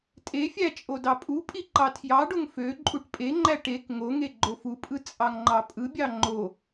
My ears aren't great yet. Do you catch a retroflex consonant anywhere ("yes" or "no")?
yes